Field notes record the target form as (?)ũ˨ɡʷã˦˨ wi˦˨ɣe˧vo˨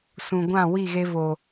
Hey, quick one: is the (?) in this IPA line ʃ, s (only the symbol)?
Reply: s